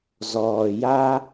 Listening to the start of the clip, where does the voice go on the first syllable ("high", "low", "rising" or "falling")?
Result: low